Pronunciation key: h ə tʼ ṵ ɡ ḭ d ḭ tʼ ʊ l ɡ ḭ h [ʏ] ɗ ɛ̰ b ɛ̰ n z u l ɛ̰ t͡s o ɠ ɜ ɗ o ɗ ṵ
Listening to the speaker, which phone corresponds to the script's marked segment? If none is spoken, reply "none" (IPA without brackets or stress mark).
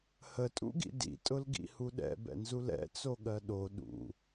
u